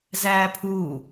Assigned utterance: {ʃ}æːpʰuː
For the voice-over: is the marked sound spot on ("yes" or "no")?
no